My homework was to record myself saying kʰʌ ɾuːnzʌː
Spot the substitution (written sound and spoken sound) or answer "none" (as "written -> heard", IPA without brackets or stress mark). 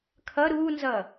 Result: none